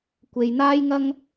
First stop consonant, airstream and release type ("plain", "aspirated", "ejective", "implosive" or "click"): plain